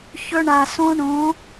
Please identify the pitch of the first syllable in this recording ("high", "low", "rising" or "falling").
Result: high